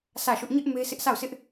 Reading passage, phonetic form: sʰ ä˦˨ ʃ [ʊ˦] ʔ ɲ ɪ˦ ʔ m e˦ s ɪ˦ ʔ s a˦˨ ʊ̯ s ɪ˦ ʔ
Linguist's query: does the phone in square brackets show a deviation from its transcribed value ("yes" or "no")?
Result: no